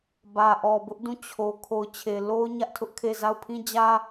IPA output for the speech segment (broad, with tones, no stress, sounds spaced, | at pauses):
b ä˨ ʔ ɔ˨ b ʊ˦ ʔ d ũ˦˨ t͡ɕʰ o˨ kʰ o˨ ʊ̯ t͡ɕʰ e˨ l o˦ ʊ̯ ɲ ä˦ ʔ tʰ ʊ˦ ʔ kʰ e˦˨ z a˦˨ ʊ̯ pʰ ĩ˦ d͡ʑ ä˦